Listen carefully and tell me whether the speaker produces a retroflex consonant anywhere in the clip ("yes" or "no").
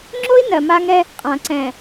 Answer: no